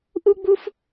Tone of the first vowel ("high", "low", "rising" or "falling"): high